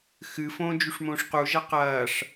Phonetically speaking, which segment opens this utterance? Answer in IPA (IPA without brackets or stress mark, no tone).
x